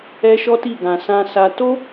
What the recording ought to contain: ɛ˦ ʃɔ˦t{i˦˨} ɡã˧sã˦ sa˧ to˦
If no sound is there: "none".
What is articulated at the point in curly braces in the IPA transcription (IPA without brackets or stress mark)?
i˦˨